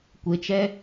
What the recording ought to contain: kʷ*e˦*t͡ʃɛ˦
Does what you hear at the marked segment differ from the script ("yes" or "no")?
yes